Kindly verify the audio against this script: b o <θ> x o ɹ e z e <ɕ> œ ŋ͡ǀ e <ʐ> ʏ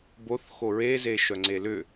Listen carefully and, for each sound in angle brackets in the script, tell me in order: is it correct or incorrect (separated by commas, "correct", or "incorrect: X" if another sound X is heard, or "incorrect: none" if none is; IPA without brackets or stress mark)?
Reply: correct, incorrect: ʃ, incorrect: l